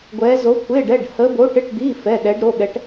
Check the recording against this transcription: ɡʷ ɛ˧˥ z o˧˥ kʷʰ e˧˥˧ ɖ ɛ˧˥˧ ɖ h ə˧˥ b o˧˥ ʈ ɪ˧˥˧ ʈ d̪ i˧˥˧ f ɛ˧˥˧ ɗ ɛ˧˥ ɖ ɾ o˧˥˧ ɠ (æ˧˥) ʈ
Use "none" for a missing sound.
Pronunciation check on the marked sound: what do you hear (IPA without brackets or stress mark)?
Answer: ɛ˧˥